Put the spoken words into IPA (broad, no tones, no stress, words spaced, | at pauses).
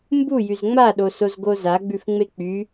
mbujyz ŋ͡maɗosozɡo zaɡ͡bʉfŋ͡me k͡py